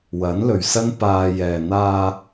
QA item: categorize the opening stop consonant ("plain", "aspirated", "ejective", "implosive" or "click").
plain